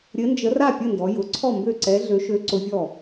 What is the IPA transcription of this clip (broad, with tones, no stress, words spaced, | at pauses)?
ɾʲɘ˧˥nd͡ʒə˧˥ ra˥˩pʲə˥˩ndɔ˩˧ jʊ˩˧ǀʰɔ˥˩mbø˥˩ǀɛ˧˥ ɮø˧˥ʃø˧˥ǀʊ˧˥vʲɔ˥˩